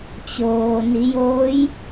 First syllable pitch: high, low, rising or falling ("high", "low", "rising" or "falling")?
low